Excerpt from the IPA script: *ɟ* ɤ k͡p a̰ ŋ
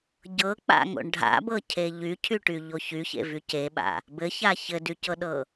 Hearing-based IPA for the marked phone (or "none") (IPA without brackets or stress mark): ɟ